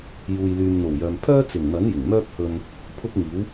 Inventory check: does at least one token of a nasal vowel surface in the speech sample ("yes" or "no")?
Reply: no